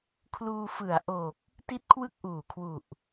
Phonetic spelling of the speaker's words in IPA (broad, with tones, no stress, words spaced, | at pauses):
kʰluː˧fɯ˩˦a̯ʔoː˨˩k̚ | ti˥˩t̚kʰwɯ˥˩k̚ʔuː˨˩kʰwu˨˩ʔ